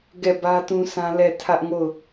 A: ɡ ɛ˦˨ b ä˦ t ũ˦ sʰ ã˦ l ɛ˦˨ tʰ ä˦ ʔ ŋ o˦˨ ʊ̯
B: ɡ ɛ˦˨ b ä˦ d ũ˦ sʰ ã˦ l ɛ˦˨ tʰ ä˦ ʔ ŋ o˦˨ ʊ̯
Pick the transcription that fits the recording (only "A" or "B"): A